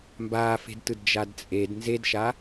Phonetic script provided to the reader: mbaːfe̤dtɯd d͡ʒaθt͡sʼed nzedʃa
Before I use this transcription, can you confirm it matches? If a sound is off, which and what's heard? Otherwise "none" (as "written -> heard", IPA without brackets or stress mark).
θ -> d